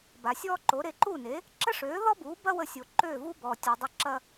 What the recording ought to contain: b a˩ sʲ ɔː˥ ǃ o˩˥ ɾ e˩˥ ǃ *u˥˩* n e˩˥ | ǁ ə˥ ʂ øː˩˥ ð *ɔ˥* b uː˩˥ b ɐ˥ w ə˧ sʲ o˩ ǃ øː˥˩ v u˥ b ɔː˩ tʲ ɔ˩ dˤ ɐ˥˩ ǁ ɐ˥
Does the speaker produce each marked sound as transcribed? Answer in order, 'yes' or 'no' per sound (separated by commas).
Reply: yes, yes